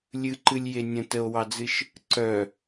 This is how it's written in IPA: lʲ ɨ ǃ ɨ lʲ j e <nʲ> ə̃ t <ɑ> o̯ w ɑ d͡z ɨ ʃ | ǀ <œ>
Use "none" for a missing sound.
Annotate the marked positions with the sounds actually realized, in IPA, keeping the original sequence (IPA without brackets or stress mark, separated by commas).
nʲ, ə, œ